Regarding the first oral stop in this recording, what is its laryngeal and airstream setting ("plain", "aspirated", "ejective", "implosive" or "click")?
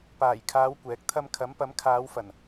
plain